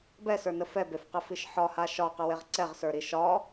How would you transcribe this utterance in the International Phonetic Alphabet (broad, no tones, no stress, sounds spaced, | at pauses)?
b ɛ s ə˞ n ə f ɛ b e f q ɛ f i ʃ ħ ɒ h a ʃ ɒ q ə w e ʁ ǀ ɛ ʁ s ə˞ ɾ i ʃ ɒ